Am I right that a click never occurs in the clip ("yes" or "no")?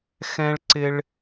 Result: no